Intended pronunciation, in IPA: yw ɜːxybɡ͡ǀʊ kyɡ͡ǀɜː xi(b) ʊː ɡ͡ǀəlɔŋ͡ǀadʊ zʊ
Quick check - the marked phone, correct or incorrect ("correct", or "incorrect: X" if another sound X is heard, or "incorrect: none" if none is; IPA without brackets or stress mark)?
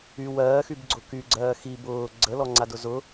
correct